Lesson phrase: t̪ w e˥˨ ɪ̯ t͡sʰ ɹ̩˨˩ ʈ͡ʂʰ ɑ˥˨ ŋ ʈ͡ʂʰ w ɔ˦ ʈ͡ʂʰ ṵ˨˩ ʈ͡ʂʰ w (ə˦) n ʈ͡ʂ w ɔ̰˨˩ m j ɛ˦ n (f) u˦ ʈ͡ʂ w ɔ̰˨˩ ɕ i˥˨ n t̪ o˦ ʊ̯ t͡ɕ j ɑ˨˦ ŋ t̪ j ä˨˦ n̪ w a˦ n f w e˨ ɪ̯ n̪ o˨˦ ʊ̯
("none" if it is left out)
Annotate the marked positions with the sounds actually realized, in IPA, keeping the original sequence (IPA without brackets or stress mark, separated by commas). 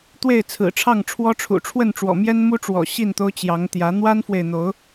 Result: ə˥˨, m